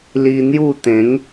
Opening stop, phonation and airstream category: plain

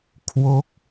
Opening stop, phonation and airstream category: aspirated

